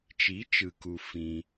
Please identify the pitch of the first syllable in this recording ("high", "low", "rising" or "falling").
rising